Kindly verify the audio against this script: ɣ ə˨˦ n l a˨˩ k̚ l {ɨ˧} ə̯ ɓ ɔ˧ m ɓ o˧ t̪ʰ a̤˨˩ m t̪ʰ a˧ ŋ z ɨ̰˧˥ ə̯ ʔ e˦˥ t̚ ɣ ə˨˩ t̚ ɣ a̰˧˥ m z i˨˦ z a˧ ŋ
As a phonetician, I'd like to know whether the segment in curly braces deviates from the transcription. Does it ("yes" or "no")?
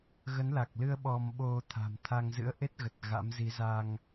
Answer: no